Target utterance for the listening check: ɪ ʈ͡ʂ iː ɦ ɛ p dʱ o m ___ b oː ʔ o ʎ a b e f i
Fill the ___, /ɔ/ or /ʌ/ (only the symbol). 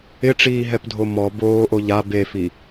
ɔ